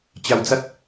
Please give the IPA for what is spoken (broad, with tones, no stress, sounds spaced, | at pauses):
t͡ɕ a˧ w d͡z a˦ t̚